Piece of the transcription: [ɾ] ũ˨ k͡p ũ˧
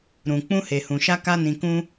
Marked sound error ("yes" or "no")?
no